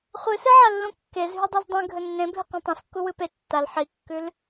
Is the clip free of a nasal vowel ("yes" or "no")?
no